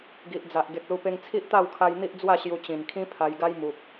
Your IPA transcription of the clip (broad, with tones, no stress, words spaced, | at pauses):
ɡi˨ʔd͡za˨ʔ ɡe˨k̚lu˧pe˧ŋt͡sʰi˦ʔ t̪a˥˧wkʰa˧j n̪i˦ʔd͡zwa˥˧ ɕju˧t͡ɕĩ˨˩nkʰĩ˦ pʰa˧jɡa˦jmu˨p̚